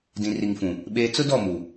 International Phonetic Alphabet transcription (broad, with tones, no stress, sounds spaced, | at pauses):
d ĩ˨ r i˨ ŋ f ũ˨ | ɓ eː˦ t͡s ʊ˦ d ɔ˦˨ m u˨